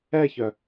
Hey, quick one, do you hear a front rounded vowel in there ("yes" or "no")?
yes